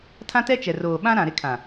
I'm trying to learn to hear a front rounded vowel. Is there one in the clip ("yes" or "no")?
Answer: no